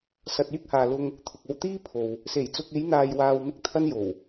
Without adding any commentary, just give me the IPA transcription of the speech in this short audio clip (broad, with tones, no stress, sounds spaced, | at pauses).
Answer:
s ɐ˨ t̚ yː˥ k̚ h aː˨ l ʊ˧ ŋ | t̪ʰ ʊ˨ k̚ o˧ w t̪ iː˥ pʰ o˨ w | s e˨˩ j t͡s ʊ˨ k̚ e˨˧ j n̪ aː˨ j w aː˨ w m ɪ˥ k̚ t̪ʰ ɐ˥ n j o˨˩ w